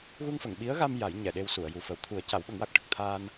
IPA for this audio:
ɣ u˧ ŋ f ə˨˩˨ ŋ ɓ i˧˥ ə̯ ɣ a˧ m j a˨˩˦ j ɲ ɛ˨˩˨ ɗ e˧ w s u˨˩˨ ə̯ j u˨˩ f ə˨˩˦ w t̪ʰ u˨˩˦ ə̯ c a˨˩˦ w ɓ ə˨˩˦ ŋ w a˨˩ k̚ ʈ ə˨˩ k̚ t̪ʰ aː˧ n

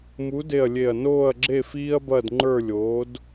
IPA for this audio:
m u˨˥ d e˧˩ ɐ̯ lʲ e˧˩ ɐ̯ n oː˥˨ ɐ̯ ɡ͡ǁ e˥˨ f iː˦ ɐ̯ b ɐ˥˨ d ŋ͡ǃ ə˞˥˨ lʲ oː˨˥ d

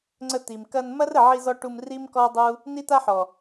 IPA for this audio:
ŋ͡ǀ ə˧ t̪ i˨ m k ɐ˧ n m ɐ˦ r ə˨ ʕ i˧ z ɔ˧ ʈ u˧ m r i˦ m k ɔ˦ dˤ u˦ | n i˦ t̪ a˦ ħ ɔ˨

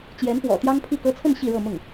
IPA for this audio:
t͡ɕ j ɛ˧˥ n p w ɔ̰˨˩ t̪ j ɑ˥ ŋ pʰ i˥˩ k ɤ˥ t͡sʰ ə˥˧ n ɕ i˥˧ ɻ ɤ˥˧ m ʊ˥˩ ŋ

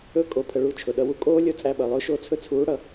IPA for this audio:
ɵ˦ kʼ o˨ pʰ ə˨ ɭ u˦˨ t͡ʃʰ ʊ˨ ɗ ʌ˧ w u˦ kʼ oː˦ lʲ o˦ t͡sʼ æ˦ ɓ ʌ˨ lˠ ʊː˦ ʃ o˦˨ t͡sʰ ɵ˧ t͡sʰ uː˨˦ ɽ ʌ˨

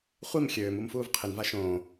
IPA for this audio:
χʷ i m xʲ øː m u m f uː v qʰ ɪ n v a ʃ õː

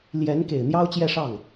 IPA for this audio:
l j ɛ˧˥ n k e˨˩ ɪ̯ n̪ j ɑ˥ ʊ̯ t͡ɕ j ɛ˥˧ ʂ ɑ˥˩ ŋ

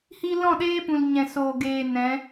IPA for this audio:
h iː˦ l ɔ̃˦˨ ɗ eː˦ p ũ˨ l ɲ ɛ̃˨ s oː˨ ɡ eː˨ n ɛ̃˨˦

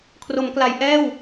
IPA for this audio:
kʰ r o˩˦ m k l a˩˦ j ʔ ɛː˥˩ w

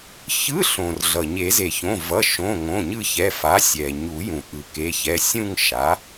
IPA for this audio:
ç ɯ˧˥˧ ɬ õ˩ r ɮ ʌ˩ ɲ e˨˩˦ z e˩ ç õ˩˧˩ v ʌ˩˧˩ ʃ õ˩˧˩ ŋ õ˩˧˩ ɲ ɯ˦˨ ç ɛ˩˧˩ f a˩˥ sʲ ɛ˩ ɲ u˨˩˦ j ũ˩ ʔ ɯ˩ k e˩˧˩ ç ɛ˩˧˩ sʲ ũ˦˨ ŋ ʃ a˩˥

